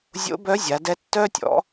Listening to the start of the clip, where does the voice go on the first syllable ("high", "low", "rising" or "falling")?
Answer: rising